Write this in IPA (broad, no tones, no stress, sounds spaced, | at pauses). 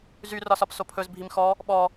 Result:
z y r ɒ s ɒ p s o pʰ ɵ z bʱ i m x ɔ | ɓ ɔ